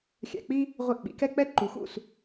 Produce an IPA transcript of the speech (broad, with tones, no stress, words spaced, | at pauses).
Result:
xʲæ̰˧k͡pi˥ | ʁʷɪ˥˩ʔɓḭ˩˥kɛ˥ k͡pɛ˥ ǃu˩˥xṵ˥˩s